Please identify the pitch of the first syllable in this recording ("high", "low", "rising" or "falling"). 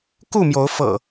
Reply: falling